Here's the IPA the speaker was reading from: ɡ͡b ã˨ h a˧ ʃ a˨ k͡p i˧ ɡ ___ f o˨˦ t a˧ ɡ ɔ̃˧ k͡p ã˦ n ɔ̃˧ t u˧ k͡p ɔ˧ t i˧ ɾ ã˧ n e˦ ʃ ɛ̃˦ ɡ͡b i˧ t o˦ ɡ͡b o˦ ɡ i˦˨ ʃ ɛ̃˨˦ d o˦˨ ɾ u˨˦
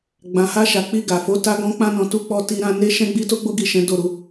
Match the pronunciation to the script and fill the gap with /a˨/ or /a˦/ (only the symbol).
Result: a˨